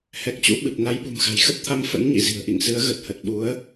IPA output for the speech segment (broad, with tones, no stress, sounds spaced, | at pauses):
h ɛ˨˩ k̚ t͡ɕ ṵ˧˥ ɓ ɨ˨˩ p̚ n a˨˦ j ɓ ṳ˨˩ m x a̤˨˩ j x ə˦˥ p̚ t̪ʰ a˧ m f ə̰˧˥ n ɲ ḭ˧˨ z i̤˨˩ ə̯ ʔ ḭ˧˨ ŋ s ɨ˨˦ ə̯ ɣ ə˨˩ t̚ h ə˨˩ t̚ ɓ u˨˦ ə̯